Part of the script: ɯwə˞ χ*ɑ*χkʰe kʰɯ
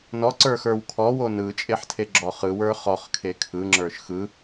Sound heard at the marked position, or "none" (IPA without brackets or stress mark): ɔ